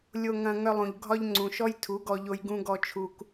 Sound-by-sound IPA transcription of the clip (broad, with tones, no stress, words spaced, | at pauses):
lʲo˧ŋɐ̃˧ ŋœ˧lˠũ˨ʎ ɡʱɒ˦ʎŋ͡ǀũ˨ ʃɔ˦jtʰu˨˦ɡɔ˧ʎo˧j ɡũ˦ɡɔ˦ t͡ʃʰu˧k